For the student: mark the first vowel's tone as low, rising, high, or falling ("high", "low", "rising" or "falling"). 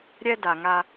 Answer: high